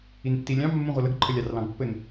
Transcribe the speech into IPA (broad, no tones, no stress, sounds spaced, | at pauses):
i n tː i lʲ ɑ̃ mː ũ ʁʷ ɐ l ə ɡ ǃʰ ə lʲ ɑ r l ɑ̃ ɡ pː ɘ n